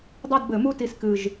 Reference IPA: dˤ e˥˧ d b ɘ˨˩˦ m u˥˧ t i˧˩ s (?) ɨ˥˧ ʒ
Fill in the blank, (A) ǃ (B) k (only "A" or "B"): B